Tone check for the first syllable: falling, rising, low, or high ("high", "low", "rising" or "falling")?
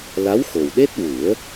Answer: rising